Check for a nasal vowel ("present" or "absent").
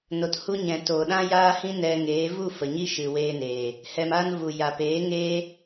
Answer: present